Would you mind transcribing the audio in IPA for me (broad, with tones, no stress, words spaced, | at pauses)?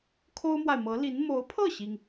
kʰo˥ʊ̯mwa˨ɪ̯mɤ˧˥li˧˥n mo˧˥ʊ̯pʰɤ˥˩ɕi˩ŋ